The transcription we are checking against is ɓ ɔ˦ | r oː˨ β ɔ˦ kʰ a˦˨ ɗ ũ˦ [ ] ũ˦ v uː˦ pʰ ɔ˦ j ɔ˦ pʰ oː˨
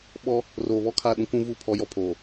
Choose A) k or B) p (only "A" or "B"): A